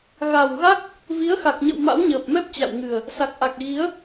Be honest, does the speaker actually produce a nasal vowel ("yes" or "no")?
no